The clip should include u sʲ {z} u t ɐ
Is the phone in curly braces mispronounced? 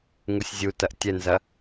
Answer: yes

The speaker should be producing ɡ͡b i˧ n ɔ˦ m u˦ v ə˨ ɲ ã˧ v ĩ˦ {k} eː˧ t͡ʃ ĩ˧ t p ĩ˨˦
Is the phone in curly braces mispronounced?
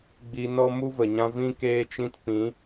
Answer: no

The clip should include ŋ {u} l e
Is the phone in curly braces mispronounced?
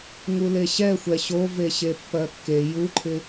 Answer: no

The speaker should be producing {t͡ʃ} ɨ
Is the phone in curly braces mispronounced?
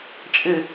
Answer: yes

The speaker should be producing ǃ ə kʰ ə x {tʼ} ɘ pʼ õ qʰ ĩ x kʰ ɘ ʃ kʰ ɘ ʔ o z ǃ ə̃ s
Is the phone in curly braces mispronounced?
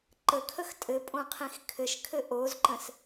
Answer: no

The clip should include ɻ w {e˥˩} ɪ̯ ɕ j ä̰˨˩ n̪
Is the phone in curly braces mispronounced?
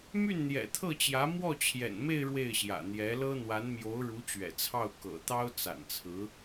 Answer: no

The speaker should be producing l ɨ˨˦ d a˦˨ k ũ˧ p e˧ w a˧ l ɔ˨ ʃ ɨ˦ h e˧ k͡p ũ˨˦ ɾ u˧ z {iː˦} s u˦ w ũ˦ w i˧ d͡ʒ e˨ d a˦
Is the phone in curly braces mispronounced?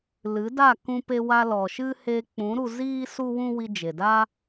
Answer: no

